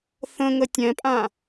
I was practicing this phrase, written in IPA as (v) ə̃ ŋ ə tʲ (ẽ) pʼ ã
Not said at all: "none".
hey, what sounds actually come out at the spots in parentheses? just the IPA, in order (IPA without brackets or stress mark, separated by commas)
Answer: θ, ɛ̃